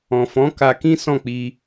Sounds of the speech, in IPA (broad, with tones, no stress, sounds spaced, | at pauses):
ɔ̃˨ f ɔ̃˨˦ k a˧ k ĩ˦ s ɔ̃˦˨ k͡p i˧